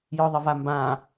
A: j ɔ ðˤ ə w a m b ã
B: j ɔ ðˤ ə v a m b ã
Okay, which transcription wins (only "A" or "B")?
B